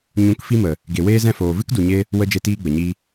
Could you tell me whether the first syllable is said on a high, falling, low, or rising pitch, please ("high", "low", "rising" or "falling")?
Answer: rising